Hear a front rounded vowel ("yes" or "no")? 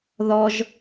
no